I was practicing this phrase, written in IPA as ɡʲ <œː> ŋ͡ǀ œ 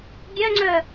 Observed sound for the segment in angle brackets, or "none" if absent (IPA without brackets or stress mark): œ